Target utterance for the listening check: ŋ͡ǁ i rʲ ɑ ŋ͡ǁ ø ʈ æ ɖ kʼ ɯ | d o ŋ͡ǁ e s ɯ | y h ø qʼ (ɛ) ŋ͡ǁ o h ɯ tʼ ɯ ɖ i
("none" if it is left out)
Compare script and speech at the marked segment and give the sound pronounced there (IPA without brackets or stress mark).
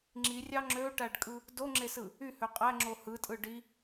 æ